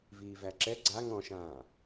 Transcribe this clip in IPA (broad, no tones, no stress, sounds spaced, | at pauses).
v iː v æ ǁ ɛ ɡ͡ǀ a ŋ ɔ̃ ʃ ãː